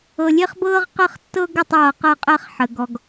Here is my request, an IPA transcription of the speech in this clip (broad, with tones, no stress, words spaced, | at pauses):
ɤ˨lʲe˦χbɤː˦ʁ qə˦˨χtːɤ˦ɡə˦˨tˤɤː˨ qɤ˦qʼɛ˦χħə˨ ɡɔ˨ɡ